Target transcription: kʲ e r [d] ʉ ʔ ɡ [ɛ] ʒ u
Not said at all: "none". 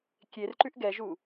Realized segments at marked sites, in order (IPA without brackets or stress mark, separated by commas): ǃ, ɛ